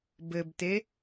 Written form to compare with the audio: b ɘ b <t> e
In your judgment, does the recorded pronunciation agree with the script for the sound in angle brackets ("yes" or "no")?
yes